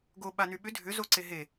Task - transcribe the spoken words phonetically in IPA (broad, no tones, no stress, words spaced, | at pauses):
ɡo ɓanyɓʏ dʱʏ zoǀeɦe